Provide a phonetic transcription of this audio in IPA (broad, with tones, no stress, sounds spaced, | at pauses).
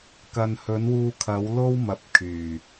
k ɐ˨ n h ɵ˨˥ n w uː˧ kʰ ɐ˨˥ w l o˥ w m ɐ˨˥ p̚ kʰ yː˨˩